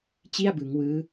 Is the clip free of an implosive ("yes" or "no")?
yes